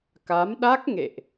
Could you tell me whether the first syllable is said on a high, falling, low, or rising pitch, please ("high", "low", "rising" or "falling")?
rising